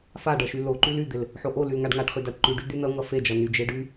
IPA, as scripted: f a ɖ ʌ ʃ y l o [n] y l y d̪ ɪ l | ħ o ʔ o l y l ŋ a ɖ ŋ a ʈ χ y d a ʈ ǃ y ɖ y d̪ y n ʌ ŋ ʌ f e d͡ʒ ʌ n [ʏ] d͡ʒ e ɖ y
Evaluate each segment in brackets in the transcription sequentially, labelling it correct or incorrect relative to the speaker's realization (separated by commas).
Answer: incorrect, incorrect